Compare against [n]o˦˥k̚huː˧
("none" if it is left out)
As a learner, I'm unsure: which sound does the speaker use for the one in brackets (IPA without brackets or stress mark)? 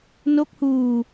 n